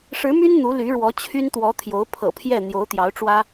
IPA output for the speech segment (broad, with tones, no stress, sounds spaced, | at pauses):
ʂ ɻ̩˧˥ m y˥ n n̪ u˧˥ l y˧˥ ɻ w ɔ˧˥ t͡ɕʰ y˥ n t̪ w ɔ˧˥ t̪ʰ j o˧˥ ʊ̯ pʰ ɤ̰˨˩ pʰ j ɛ˥˩ n̪ j o˧˥ ʊ̯ t̪ j ɑ˧˥ ʊ̯ ʈ͡ʂ w ä˥